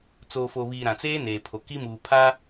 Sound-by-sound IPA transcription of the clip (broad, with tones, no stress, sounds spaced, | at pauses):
t͡s oː˨ f o˨ β i˨ ɾ ã˨ t͡s eː˦ n eː˨ pʰ o˨ k i˦ m uː˨ pʰ a˦